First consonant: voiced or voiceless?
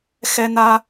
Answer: voiceless